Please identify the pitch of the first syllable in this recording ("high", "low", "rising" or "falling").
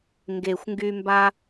low